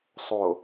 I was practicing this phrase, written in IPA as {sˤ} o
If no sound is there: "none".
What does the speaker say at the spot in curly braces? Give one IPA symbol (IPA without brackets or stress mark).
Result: sˤ